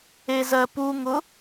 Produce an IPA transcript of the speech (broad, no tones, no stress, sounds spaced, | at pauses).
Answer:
e z ɜ p u ŋ ʊ